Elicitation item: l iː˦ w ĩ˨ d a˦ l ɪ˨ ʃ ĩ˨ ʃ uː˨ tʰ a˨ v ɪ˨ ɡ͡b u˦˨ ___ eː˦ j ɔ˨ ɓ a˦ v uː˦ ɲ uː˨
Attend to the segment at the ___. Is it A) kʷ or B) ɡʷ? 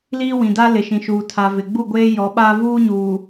B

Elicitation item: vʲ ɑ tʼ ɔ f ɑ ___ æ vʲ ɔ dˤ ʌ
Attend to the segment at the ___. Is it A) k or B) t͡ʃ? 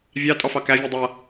A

